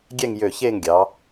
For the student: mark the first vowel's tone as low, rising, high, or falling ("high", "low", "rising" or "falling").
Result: falling